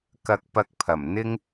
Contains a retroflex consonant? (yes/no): no